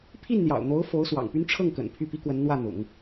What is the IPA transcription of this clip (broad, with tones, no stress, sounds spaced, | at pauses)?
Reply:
pʰ i˥˩ n n̪ j ɑ̰˨˩ ʊ̯ n̪ o˧˥ ʊ̯ f o˧˥ ʊ̯ s w ɑ̰˨˩ ŋ p y˥ n ʈ͡ʂʰ ɤ˥˩ ŋ k ə̰˨˩ n pʰ y˥˩ p i˥ k w ə˧˥ n n̪ w ä˥˩ n̪ ʊ̰˨˩˦ ŋ